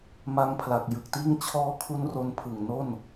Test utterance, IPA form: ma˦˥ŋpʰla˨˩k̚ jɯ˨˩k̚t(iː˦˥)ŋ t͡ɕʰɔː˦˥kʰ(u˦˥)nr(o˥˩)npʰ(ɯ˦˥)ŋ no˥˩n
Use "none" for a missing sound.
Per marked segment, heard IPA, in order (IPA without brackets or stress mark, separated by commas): iː˥˩, u˦˥, o˧, ɯ˨˩